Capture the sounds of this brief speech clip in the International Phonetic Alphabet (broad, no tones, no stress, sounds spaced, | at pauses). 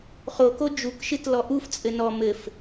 χ o k o d͡ʒ u k ʃ ɨ t l ɔ ʔ u f t͡sʼ ɘ n ɔ m ɘ f